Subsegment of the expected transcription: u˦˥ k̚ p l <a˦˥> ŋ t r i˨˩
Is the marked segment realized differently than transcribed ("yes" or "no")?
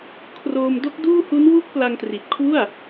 yes